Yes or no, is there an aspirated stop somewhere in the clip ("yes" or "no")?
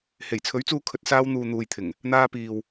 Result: yes